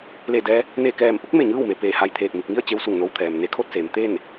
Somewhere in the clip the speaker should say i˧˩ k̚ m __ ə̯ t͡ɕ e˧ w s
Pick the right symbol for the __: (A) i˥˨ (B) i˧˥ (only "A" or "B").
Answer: A